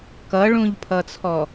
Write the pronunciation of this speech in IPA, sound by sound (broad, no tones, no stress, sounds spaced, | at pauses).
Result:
k ʌ ɭ ũ ʎ pʰ ʌ t͡sʰ ɔ